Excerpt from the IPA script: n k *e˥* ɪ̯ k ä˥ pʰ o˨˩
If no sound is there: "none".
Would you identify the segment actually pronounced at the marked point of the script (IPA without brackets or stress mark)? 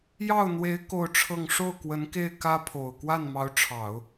e˥˩